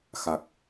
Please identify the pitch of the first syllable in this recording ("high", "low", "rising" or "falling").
low